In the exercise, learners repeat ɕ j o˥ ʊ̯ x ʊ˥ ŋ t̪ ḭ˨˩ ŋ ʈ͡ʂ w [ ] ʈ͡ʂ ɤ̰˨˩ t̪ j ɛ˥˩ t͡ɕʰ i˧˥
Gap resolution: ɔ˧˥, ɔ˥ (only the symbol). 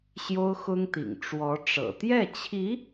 ɔ˧˥